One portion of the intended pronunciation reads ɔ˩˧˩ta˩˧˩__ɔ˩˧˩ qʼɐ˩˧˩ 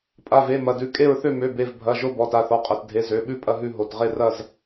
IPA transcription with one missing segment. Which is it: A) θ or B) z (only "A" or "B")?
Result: A